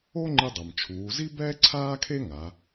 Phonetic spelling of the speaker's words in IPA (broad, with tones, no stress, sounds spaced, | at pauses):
o˥ ŋ͡ǃ ɨ˧ dˤ ɐ˩ m t͡ʃʰ uː˩˧ z i˥ b ɛː˥ ǀʰ aː˥ kʰ e˥ ŋ a˩˧